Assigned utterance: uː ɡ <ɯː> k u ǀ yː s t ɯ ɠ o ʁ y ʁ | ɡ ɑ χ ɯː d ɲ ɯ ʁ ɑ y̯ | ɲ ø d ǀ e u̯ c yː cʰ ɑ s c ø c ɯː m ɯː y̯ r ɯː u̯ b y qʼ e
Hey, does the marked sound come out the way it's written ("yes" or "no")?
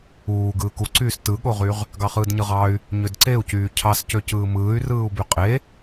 yes